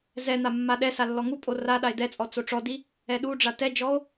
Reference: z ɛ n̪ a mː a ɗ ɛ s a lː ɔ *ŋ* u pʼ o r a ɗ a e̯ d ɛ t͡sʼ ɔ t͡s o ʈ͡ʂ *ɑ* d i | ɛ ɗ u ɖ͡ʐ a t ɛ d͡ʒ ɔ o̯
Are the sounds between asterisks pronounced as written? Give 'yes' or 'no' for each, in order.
yes, no

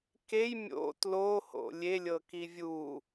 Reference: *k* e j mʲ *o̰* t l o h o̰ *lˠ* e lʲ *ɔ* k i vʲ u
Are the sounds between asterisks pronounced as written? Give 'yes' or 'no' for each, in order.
yes, yes, no, no

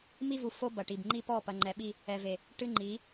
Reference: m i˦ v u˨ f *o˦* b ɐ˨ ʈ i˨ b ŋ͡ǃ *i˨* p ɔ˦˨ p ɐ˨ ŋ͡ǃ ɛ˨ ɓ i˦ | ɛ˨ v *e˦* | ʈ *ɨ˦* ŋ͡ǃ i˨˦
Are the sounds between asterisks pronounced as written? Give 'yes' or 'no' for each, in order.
yes, no, no, yes

